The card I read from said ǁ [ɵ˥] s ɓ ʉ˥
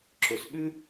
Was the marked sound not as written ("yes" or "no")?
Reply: yes